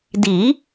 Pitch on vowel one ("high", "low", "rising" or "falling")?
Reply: rising